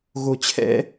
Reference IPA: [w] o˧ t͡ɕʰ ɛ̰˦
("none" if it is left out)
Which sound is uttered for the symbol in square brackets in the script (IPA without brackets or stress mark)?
ɣ